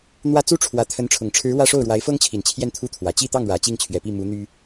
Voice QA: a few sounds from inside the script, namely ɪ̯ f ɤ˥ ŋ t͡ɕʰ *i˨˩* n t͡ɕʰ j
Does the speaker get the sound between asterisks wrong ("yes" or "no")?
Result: no